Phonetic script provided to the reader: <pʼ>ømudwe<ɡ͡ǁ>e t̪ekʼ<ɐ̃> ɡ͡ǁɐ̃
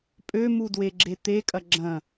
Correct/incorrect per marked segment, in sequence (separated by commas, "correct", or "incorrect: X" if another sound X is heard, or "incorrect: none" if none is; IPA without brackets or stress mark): correct, correct, incorrect: ɐ